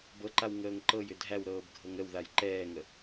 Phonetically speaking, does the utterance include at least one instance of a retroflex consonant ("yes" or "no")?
no